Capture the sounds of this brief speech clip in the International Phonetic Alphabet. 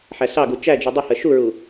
ħæsɑɡu t͡ʃæd͡ʒu dˤɪhɜ ʃuɹu

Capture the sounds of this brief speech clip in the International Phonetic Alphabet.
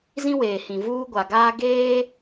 zĩ˦weː˨ hĩ˨vuː˦ɡʷa˨ɡaː˦ ɡeː˦

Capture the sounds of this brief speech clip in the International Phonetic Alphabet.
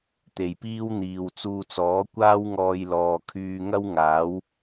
t̪e˨jpiː˥wn̪iː˨w t͡suː˧t͡sɔː˨˥ kʷaː˥wŋɔː˧jlɔː˨ kʰyː˧ŋɐ˥wŋaː˨˥w

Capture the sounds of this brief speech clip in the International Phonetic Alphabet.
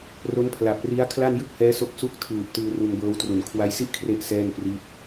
ro˦˥npʰla˨˩p̚ ri˦˥a̯ kʰla˥˩njɯ˥˩k̚hɛː˦˥so˦˥k̚ su˦˥k̚ tʰɯː˨˩p̚ tɯː˧ru˧nbɤː˦˥w tru˨˩nkʰwa˦˥jsi˥˩ʔkʰre˦˥ʔ sɛː˥˩npri˦˥t̚

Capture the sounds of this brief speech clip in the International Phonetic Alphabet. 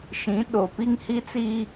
ʃĩ˨˦ɗo˨ pi˦ŋhi˦t͡si˦

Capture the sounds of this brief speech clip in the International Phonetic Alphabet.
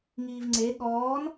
ŋiːvŋ͡ǀe ɠɔːn

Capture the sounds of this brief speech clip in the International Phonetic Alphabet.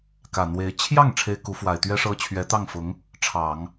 kä˨˩n̪we˧˥ɪ̯ t͡ɕʰjɑ˥˩ŋ ʈ͡ʂʰe˥ɪ̯ku˧˥ fwa˨˩ɪ̯t̪ɥɛ˥ʂɤ˥ t͡ɕʰɥɛ˧˥t̪ɑ˥˩ŋ fʊ˧˥ŋ | ʈ͡ʂʰɑ˨˩˦ŋ

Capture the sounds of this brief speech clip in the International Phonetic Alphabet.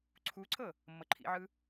ǀʰuǀʰɤ | mːɤǃʰḭʕɯ

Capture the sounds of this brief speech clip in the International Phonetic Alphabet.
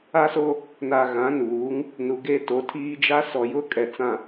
a˦so˦ | na˨ ɣã˨˦ nuː˨˦ŋ | nu˨ɡe˦to˨˦tʰiː˦ d͡ʒa˦sɔ˨ jʊ˦kʼɛ˨t͡sã˨

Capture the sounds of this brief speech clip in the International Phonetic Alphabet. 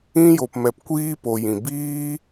ĩ˧jo˨pmɛ˨p kʷiː˦ po˨jĩ˨ biː˦

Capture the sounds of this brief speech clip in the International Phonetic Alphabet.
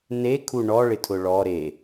nekʰu ɳɔɭɪtʰʊ ɭɔ ɾe

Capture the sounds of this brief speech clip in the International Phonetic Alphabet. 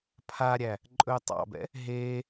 pʰaɾʲæ | ǃʼɵːtˤɑ̰bɛ̰ | ɦeː

